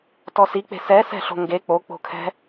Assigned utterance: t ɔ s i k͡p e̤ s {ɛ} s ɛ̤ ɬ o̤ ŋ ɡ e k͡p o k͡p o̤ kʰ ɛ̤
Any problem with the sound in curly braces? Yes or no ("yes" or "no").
no